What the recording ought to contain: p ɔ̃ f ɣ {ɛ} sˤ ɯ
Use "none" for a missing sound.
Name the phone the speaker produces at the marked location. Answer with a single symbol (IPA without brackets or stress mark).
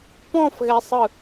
ɛ